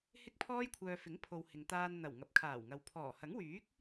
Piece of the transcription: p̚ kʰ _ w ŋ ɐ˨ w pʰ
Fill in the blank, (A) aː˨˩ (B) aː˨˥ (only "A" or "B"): A